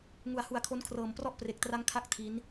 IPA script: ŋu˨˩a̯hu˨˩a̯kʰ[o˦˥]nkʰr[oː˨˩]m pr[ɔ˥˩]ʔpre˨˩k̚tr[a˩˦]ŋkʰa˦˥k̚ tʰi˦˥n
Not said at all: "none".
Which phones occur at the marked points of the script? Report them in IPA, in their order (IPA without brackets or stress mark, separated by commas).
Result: o˦˥, ɤː˨˩, ɔ˥˩, a˦˥